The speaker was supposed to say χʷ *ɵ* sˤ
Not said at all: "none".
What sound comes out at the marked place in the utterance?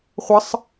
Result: ə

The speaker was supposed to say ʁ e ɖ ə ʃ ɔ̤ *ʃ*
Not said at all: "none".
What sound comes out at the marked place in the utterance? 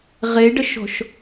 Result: ʃ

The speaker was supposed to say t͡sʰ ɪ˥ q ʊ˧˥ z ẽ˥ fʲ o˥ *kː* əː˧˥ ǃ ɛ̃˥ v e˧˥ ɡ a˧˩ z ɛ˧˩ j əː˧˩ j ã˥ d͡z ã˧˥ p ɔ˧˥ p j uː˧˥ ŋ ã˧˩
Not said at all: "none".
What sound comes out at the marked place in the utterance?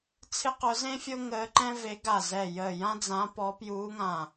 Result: ŋ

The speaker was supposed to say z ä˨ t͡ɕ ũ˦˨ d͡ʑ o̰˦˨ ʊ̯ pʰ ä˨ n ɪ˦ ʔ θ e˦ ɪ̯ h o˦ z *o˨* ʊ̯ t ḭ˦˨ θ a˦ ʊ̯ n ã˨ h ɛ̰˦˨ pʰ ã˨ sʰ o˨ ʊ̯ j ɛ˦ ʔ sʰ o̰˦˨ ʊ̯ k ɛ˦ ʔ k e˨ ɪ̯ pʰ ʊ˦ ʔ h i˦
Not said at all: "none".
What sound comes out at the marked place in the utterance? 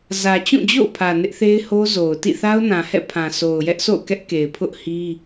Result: o˨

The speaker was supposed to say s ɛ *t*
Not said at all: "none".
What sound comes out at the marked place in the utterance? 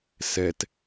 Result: t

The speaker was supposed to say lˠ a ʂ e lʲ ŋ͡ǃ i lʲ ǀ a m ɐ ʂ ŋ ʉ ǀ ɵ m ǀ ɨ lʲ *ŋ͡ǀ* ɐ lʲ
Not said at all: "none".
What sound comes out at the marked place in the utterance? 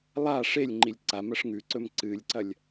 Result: ǀ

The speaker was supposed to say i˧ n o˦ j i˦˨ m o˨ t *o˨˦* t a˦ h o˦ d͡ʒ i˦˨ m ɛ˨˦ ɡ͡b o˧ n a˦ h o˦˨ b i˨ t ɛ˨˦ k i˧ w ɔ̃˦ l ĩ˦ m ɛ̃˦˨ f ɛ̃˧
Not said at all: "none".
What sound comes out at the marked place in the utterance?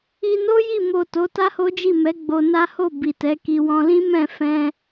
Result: o˨˦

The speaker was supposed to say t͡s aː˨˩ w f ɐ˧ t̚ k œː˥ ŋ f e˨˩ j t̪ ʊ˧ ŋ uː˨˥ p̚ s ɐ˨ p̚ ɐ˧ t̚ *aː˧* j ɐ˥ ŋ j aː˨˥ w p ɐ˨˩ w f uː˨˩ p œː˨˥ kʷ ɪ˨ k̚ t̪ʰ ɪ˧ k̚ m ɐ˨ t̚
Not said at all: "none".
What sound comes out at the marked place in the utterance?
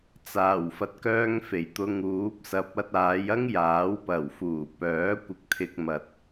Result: aː˨˧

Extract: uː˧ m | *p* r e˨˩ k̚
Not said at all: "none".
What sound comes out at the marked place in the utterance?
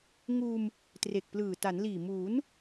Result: t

